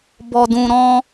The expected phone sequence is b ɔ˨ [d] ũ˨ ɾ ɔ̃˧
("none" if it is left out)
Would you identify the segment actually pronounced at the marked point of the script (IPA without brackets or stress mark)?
d